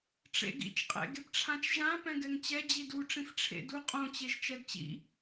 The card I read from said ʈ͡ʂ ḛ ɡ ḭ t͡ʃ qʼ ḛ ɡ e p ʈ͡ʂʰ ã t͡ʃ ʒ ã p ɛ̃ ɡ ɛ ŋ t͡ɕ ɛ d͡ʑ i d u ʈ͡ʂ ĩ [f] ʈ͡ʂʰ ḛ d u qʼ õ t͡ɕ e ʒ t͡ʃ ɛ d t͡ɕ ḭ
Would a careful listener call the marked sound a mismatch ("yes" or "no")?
no